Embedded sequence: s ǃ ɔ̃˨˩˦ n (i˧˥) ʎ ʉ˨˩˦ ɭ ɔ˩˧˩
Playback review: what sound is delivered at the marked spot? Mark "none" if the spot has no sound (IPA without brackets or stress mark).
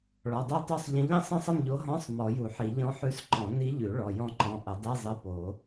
i˧˥